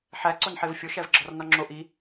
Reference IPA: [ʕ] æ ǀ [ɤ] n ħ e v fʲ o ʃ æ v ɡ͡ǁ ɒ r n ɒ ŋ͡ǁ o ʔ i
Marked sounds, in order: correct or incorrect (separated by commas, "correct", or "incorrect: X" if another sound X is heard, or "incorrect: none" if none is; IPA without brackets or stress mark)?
incorrect: ħ, incorrect: o